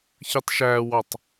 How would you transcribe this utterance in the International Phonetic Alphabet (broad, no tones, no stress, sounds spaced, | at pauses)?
ç ɯ tˤ ʃ æ w ɑ tˤ